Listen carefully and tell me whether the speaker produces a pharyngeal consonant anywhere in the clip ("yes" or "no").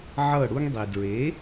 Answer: yes